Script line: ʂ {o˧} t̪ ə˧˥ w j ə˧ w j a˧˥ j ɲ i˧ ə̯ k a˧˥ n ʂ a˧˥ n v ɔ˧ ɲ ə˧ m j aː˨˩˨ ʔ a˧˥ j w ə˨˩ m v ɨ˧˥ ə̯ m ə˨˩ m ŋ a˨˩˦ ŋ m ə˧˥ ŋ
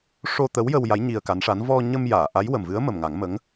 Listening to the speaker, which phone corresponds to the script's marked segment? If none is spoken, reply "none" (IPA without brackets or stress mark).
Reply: o˧